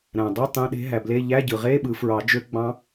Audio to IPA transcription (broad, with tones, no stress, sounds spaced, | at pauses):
ɾ æ̃˩ dˤ ɯ˧˥˧ tˤ ẽ˧˥˧ ɗ e̤˦˥ ɦ æ˩ b l e˧˥˧ ʎ æ˧˥˧ ɟ ɯ˩ ʁ e˧˥˧ ɓ ɯ˨˩˦ f ɹ ɑ˨˩˦ d͡ʒ ø˦˥ ɡ͡b ɑ̃˦˥